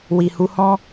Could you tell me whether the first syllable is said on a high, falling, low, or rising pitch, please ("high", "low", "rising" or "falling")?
low